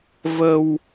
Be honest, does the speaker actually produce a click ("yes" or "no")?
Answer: no